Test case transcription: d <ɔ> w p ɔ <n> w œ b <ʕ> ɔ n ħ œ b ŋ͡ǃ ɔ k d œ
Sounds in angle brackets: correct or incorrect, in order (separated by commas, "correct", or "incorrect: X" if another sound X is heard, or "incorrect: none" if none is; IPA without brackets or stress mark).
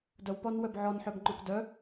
incorrect: ə, correct, correct